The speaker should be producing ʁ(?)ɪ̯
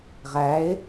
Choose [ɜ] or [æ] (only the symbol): æ